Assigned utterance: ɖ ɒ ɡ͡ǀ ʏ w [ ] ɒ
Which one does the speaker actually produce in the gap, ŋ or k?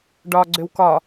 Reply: k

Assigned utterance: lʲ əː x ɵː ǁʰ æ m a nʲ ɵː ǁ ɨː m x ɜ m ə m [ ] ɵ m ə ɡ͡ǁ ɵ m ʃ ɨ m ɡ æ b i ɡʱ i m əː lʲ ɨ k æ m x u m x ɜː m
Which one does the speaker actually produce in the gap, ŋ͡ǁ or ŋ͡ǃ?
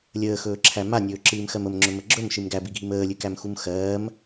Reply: ŋ͡ǁ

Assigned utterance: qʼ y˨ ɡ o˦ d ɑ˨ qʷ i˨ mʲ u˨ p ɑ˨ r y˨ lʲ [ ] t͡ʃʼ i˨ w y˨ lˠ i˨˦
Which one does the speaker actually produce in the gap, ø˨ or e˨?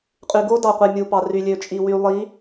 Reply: ø˨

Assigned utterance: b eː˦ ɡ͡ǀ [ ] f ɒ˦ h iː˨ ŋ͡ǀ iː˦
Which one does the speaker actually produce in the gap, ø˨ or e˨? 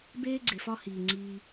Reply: e˨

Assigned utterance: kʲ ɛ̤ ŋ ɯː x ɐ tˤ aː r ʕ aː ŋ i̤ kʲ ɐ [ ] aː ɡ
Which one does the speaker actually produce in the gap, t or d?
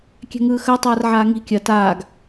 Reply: t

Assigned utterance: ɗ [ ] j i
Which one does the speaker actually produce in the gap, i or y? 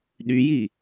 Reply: y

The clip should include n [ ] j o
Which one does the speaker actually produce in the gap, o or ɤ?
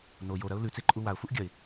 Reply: o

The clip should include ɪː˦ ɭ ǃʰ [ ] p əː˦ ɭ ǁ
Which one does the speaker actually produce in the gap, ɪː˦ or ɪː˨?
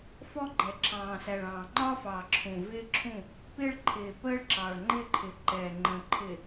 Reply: ɪː˨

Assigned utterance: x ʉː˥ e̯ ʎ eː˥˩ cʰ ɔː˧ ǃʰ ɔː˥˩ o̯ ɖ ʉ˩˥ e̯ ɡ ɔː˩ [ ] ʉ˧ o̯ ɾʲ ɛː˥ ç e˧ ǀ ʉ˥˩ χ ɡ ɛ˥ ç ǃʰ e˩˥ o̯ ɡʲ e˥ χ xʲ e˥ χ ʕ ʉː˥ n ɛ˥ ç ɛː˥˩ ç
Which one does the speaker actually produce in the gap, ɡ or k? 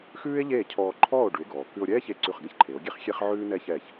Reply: k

